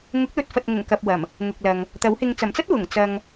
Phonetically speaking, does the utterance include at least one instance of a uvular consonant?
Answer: no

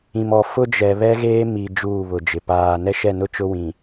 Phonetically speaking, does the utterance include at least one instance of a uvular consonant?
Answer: no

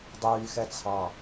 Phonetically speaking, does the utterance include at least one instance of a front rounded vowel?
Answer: yes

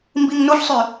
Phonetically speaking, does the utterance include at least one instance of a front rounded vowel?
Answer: yes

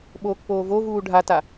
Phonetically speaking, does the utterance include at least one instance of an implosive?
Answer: yes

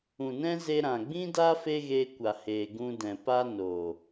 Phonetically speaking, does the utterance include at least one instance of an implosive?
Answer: no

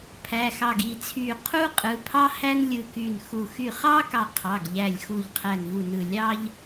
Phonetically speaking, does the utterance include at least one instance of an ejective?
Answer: yes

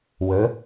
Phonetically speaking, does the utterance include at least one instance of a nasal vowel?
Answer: no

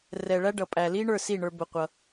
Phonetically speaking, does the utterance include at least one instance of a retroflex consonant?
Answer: yes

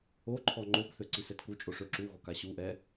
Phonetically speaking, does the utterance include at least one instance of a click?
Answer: yes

